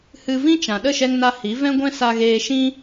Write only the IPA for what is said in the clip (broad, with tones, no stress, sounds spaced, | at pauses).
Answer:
h ɨ˧ v ĩ˦ t͡ʃ ã˨ ɗ ə˦˨ ʃ ɛ˧ ŋ n a˧ h i˨˦ v ɛ̃˦ ɡʷ ɛ̃˦ s a˧ ɣ eː˧ ʃ ĩ˦